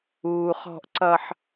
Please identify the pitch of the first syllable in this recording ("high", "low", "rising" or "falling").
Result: low